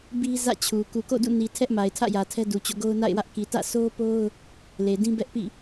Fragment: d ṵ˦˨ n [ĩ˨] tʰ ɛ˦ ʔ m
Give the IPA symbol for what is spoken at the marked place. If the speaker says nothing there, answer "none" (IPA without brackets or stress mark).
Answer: i˨